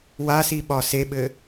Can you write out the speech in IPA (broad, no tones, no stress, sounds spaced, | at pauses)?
w a s i ɓ ɒ s e ɓ ɘ